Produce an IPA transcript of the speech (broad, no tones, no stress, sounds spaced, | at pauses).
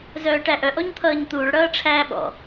z œː ʈ æ ʔ œ ʔ ɔ ɲ t̪ʰ ʌː ɲ t̪ uː ɭ ɽ ʌː ʈ͡ʂʰ æː ɓ ɔ̰